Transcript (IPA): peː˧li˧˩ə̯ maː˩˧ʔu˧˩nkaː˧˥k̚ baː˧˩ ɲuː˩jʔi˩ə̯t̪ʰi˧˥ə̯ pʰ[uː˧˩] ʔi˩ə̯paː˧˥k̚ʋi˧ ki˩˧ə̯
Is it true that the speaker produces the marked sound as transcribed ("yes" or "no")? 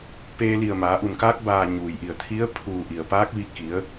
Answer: yes